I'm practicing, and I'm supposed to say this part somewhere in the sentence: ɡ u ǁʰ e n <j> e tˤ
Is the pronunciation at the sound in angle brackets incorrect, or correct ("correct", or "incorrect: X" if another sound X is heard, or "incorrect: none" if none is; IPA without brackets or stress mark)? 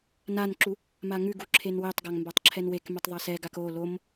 incorrect: w